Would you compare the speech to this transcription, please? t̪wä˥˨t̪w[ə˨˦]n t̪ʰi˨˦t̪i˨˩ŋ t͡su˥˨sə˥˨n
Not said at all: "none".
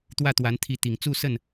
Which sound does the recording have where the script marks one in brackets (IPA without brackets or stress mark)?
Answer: a˨˦